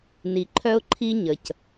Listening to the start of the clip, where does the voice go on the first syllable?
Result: low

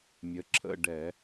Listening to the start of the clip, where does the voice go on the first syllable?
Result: rising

